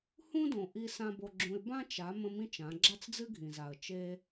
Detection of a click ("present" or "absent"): present